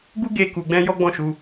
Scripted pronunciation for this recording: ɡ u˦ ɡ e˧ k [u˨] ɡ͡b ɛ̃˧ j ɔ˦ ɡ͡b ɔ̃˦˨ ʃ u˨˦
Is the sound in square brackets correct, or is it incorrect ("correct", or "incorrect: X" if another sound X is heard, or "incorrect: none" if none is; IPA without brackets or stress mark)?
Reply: correct